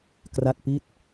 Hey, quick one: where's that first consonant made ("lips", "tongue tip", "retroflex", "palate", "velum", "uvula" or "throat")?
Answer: velum